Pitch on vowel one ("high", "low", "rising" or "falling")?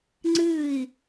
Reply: falling